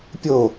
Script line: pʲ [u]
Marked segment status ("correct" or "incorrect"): incorrect